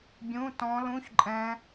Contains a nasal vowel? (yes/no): yes